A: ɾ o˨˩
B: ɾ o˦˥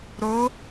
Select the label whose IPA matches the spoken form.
B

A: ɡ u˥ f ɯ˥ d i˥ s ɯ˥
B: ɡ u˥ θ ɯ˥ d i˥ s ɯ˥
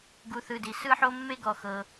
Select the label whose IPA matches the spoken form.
B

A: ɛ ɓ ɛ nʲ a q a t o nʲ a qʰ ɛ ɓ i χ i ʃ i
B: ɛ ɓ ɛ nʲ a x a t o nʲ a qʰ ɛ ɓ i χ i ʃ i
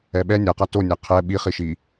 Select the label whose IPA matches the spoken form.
A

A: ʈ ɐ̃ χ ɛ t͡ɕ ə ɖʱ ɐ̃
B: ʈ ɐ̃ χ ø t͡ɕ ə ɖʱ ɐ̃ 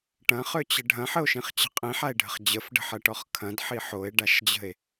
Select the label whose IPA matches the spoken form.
B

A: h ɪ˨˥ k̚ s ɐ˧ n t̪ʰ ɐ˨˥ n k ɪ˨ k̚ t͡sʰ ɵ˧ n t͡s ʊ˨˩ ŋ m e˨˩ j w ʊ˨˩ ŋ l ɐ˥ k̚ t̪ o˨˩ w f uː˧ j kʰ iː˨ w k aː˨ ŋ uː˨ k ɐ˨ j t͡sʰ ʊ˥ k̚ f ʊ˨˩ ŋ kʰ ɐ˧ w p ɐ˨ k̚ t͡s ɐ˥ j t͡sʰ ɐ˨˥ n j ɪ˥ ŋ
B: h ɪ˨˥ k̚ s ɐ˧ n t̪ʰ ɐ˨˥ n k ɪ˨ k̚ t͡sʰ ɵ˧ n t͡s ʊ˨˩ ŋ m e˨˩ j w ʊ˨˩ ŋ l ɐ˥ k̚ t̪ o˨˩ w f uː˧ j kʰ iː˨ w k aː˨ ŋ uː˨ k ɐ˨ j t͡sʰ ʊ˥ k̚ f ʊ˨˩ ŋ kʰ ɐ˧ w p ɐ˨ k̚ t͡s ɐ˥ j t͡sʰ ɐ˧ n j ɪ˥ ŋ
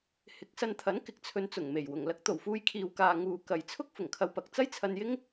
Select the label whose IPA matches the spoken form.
B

